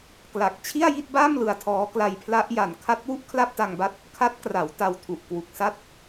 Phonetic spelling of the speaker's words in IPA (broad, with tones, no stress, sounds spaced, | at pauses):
k l a˨˩ k̚ t͡ɕʰ i˥˩ a̯ j i˥˩ t̚ b a˥˩ m l ɯ˧ a̯ tʰ ɔː˦˥ k l a˧ j pʰ l a˦˥ ʔ j a˨˩ n kʰ a˦˥ t̚ w u˥˩ ʔ kʰ l a˥˩ p̚ t a˧ ŋ b a˦˥ t̚ | kʰ a˦˥ t̚ k r a˩˦ w t a˧ w tʰ u˨˩ ʔ k w u˨˩ k̚ s a˥˩ t̚